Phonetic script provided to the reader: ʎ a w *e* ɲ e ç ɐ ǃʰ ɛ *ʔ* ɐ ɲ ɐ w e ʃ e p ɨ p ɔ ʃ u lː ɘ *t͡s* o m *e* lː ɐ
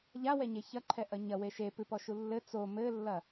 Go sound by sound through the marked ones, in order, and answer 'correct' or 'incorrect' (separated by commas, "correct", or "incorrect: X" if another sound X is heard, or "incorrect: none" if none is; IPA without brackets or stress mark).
incorrect: ɛ, correct, correct, incorrect: ɘ